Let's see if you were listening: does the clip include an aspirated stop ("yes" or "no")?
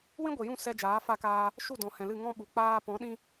no